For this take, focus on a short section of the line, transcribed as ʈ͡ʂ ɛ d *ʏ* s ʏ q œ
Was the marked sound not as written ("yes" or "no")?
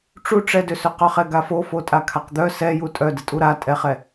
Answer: no